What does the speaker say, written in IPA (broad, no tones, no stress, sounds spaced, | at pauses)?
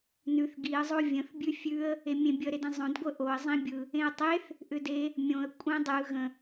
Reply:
n ʉ θ ɡ i ə̯ zˤ o vʲ ə̃ θ bʲ ʉ fʲ ʉ ə̯ | e mʲ ẽ bʲ ə ɾ e d ẽ zˤ õ d ɡʷ ə ʔ o ə̯ zˤ ĩ bʲ ɯ | ẽ ə̯ tˤ e θ | ʔ ʏ d e | mʲ õ ə̯ kʷʼ ẽ dˤ ɯ ɣ ə̃